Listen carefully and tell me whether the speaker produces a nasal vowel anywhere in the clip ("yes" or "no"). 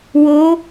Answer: no